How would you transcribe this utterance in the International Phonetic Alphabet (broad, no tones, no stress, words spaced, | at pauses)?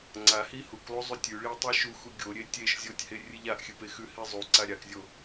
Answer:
ŋ͡ǀahi huklˠu zˤutʲʉɭi tˤiʃuxu ɡʲoɾʲe tʲeʃ zʲotʲhe rʲɨʎaʔxʲɨ pexʉhi zˤuǀa ɾʲakzʲo